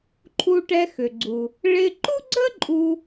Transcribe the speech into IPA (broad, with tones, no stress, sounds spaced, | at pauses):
ǃʰ u˧ ʈ ɛ˧ x ʏ˩ ɡ͡ǀ u˩ | ɭ ɪ˧ ǃ u˥ ɡ͡ǀ ə˥ ǃʼ u˧